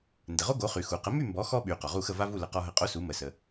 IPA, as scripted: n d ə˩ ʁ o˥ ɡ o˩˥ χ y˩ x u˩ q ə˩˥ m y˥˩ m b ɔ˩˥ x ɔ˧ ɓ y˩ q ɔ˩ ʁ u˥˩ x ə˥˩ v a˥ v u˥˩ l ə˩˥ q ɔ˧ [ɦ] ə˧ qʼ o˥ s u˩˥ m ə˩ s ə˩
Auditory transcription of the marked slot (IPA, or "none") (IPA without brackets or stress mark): ɦ